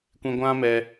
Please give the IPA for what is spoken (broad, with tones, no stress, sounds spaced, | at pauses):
kʷ ĩ˧ ɡʷ ã˦ m ɛ˧